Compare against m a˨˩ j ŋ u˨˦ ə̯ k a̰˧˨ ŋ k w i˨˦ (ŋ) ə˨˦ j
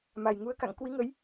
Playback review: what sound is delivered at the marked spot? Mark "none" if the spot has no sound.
ŋ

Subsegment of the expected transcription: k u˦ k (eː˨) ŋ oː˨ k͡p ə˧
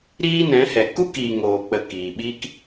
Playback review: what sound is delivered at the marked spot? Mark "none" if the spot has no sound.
iː˨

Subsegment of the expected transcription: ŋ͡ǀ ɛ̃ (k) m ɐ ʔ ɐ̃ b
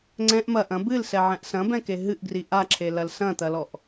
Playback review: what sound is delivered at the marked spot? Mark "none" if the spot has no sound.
ʔ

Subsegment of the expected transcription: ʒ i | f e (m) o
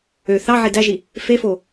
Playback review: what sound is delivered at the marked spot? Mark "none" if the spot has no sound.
f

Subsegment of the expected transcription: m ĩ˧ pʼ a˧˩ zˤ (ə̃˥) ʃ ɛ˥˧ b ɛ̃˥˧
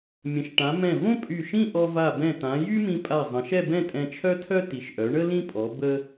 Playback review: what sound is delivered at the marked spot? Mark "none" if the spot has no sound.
ə̃˩˧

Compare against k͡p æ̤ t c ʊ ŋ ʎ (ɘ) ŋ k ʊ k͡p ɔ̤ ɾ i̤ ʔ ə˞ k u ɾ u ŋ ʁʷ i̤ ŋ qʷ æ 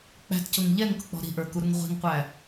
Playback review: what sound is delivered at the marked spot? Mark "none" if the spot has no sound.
ɛ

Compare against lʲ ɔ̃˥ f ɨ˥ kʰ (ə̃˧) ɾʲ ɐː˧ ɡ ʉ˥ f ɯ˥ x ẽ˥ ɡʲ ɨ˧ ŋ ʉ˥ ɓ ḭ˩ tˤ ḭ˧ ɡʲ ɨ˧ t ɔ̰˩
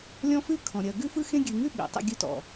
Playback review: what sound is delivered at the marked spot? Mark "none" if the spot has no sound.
ɔ̃˧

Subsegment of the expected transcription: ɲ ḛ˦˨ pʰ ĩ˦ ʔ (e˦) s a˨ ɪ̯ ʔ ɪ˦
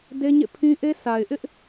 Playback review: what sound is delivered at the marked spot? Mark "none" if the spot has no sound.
e˦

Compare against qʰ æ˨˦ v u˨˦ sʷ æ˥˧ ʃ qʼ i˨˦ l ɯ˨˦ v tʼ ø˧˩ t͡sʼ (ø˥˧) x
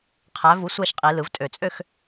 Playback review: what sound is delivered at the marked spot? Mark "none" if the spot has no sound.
ø˥˧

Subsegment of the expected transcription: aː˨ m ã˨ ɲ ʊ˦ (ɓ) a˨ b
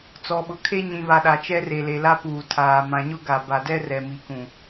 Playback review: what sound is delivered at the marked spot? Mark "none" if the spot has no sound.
ɡ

